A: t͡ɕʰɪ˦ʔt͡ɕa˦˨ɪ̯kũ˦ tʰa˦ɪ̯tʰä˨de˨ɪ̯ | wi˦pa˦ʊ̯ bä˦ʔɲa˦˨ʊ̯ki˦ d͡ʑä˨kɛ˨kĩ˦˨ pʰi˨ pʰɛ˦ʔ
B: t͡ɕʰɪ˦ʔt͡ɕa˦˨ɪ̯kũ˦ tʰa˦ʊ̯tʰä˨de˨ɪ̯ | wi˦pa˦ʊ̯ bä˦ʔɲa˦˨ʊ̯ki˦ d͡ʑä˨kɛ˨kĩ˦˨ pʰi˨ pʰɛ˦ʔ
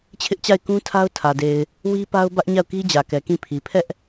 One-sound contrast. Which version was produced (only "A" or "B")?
B